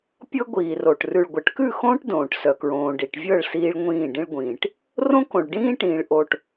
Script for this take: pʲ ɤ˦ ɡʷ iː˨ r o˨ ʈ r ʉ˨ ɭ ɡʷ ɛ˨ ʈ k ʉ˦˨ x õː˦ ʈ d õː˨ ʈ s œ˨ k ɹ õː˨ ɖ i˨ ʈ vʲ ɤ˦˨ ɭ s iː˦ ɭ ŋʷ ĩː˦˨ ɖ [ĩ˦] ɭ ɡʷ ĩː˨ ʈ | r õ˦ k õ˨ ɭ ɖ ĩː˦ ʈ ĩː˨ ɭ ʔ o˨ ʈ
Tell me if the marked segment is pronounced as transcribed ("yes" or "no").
yes